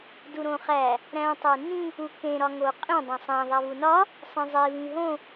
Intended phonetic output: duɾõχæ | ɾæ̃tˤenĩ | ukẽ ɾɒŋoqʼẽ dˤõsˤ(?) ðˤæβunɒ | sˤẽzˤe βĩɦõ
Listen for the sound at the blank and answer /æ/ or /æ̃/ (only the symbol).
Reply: æ̃